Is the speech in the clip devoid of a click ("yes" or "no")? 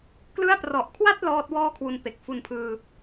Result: yes